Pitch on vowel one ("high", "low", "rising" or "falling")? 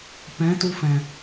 rising